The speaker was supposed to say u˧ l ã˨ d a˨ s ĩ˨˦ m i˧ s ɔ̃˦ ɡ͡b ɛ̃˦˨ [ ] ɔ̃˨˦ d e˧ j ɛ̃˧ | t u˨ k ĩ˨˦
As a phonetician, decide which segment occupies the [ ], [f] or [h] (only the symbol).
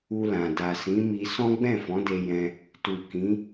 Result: f